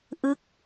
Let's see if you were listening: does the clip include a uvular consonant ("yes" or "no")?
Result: no